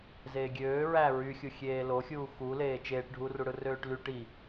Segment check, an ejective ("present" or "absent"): absent